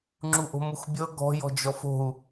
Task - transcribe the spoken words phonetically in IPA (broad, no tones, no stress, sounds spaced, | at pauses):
ŋ͡ǁ u ʔ o̤ m u x bʲ ɤ ɡ ɔ̤ j ɔ̤ d͡ʒ ɔ f o̤ u̯